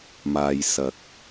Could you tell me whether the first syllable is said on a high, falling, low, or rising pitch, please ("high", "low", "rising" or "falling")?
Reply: low